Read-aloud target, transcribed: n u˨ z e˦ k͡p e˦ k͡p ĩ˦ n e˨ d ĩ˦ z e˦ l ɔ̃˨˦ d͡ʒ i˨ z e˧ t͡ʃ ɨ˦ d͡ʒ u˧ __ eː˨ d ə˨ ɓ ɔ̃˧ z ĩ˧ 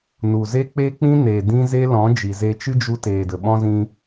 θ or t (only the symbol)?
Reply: t